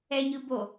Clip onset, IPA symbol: ɛ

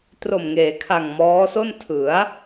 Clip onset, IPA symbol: t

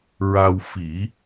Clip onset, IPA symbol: ɹ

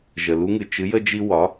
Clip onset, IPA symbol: ʒ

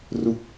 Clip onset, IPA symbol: r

